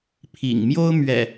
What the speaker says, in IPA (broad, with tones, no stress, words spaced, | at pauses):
pʰḭ˨˩ŋmjo˦ʊ̯ mɥɛ̰˨˩